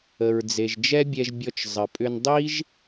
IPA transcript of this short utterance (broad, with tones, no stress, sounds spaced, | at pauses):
ə˩ ɹ d͡z e˩ ʒ d͡ʒ ɛ˥ bʲ ɛ˧ ʒ bʲ ɔ˧ t͡ʃ zˤ ə˩ pʼ ʏ˧ n dˤ i˥ ʒ